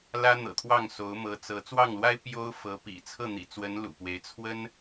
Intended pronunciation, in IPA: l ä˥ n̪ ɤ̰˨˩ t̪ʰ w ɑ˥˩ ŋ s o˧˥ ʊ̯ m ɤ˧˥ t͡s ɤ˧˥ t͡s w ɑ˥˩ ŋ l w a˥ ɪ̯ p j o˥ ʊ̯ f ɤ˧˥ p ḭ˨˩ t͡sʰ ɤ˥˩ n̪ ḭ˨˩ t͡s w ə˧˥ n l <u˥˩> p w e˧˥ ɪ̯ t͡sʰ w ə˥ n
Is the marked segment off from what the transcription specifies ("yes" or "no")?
yes